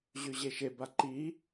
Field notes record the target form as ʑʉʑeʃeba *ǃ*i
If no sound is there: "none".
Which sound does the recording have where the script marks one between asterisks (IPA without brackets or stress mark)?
ǃ